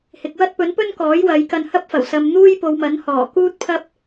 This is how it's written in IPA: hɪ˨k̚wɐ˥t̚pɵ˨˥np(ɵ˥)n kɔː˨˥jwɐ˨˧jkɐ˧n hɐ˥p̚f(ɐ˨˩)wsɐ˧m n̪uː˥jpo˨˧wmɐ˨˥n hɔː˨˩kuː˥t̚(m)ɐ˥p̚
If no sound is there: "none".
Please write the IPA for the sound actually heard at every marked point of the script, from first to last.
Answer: ɵ˥, ɐ˨˩, pʰ

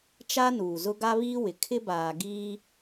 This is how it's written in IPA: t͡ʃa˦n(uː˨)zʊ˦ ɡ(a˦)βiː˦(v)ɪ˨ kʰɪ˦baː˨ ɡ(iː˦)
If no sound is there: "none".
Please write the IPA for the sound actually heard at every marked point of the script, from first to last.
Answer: uː˨, a˦, w, iː˦

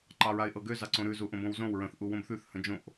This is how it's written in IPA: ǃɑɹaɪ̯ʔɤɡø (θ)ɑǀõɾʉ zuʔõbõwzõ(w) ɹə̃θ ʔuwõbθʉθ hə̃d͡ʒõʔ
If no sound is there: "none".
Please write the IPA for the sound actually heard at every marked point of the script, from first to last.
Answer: z, w

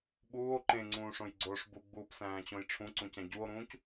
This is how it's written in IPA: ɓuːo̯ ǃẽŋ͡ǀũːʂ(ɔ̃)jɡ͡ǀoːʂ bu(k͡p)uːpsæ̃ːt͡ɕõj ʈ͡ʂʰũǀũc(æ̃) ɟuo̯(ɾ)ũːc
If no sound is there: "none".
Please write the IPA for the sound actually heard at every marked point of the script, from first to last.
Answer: õ, ɡ͡b, æ̃, ɾ

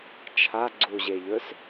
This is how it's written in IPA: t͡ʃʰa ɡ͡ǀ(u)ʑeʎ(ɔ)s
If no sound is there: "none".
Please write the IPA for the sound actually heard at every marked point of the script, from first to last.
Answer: u, ɵ

